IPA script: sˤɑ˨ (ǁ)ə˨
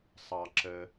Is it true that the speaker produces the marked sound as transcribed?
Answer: yes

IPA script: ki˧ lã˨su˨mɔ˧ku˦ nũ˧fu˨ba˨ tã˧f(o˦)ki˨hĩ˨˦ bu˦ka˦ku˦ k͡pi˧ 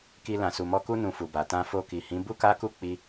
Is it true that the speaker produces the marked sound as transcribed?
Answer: no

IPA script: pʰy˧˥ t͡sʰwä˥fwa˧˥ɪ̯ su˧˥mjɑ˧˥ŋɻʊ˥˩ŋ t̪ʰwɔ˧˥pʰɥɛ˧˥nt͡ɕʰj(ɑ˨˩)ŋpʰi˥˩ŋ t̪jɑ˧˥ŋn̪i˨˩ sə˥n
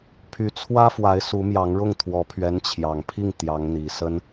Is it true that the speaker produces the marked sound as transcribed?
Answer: yes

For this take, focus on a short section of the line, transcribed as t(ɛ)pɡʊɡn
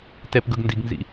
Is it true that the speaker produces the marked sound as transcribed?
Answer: yes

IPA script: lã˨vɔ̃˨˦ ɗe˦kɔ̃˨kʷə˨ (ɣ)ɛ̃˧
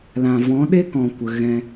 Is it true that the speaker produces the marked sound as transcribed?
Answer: yes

